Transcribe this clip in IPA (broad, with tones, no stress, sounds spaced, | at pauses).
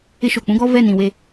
ɪ˦ ʃ o˨ k͡p ũ˦ ɡ ɔ˦ v ɛ˦˨ n ĩ˨ w e˦